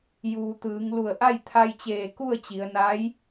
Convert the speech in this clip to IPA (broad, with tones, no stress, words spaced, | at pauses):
juː˩t̪ɯː˩˧ŋlu˧˩ə̯ ʔa˥˨jt̪ʰa˧jt͡ɕeː˧˩ ku˥˨ə̯t͡ɕi˩˧ə̯naː˧˥j